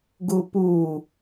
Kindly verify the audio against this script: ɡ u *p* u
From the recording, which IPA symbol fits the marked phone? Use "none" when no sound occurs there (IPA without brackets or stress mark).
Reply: p